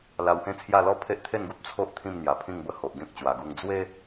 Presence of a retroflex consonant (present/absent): absent